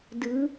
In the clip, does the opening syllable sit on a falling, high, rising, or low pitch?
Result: rising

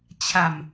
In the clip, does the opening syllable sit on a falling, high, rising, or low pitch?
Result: low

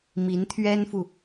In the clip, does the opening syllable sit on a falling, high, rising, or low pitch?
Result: rising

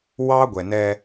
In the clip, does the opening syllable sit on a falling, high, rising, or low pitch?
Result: high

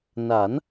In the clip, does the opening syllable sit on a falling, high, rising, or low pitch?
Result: rising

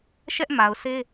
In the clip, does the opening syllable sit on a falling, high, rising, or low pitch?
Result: high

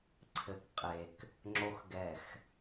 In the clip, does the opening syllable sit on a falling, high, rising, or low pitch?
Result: low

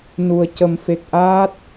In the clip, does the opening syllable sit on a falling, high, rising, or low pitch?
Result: low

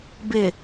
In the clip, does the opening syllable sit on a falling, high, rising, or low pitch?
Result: low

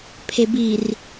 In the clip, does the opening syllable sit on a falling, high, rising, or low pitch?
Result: low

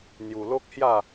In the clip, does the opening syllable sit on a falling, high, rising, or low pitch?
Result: low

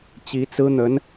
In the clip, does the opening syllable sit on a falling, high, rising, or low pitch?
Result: rising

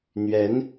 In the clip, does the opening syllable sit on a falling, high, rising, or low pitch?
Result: rising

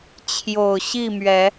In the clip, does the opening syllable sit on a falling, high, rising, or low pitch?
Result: low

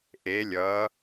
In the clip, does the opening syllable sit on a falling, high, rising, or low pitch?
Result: rising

